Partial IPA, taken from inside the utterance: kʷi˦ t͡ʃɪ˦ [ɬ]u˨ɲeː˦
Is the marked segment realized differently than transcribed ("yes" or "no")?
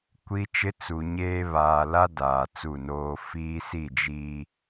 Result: yes